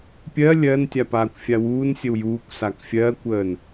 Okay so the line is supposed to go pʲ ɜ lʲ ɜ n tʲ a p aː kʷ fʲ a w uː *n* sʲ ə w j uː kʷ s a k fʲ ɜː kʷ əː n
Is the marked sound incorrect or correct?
correct